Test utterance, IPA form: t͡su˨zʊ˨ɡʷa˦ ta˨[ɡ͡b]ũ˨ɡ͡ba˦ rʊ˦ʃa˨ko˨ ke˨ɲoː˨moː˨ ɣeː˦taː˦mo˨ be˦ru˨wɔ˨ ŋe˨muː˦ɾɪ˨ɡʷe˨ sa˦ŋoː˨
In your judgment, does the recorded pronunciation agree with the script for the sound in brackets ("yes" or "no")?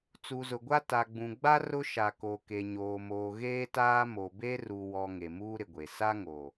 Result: yes